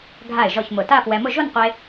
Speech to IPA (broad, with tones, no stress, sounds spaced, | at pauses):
ɡʱ a˧˩ ɪ̯ ʒ ɔ˧˩ ç m ʊ˧˩ t a˥˧ f w ɛ˧ m ʊ˥˧ ʒ o˥˧ n qʷ e˧